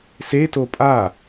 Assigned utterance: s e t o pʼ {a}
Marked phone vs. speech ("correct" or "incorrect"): correct